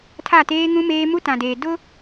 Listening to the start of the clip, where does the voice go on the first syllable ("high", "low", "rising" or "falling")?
falling